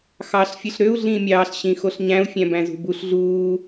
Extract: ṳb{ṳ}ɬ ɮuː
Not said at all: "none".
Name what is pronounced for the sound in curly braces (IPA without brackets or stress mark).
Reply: u